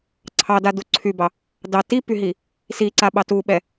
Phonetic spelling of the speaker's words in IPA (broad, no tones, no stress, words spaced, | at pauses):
ǀʰɑdadu ǀʰybɑ | dɑ tipyɦi | siǀaɓɑ tuɓɛ